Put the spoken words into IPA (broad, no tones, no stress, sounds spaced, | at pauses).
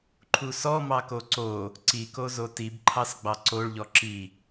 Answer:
ǃʰ u s ɔ m ɑ k o ǀ o | ǀ i k o z o t i b ǃʰ ɑ s ɡ͡b ɑ ǀ o ɭ ʎ ɔ ǁ i